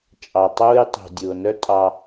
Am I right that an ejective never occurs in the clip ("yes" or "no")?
no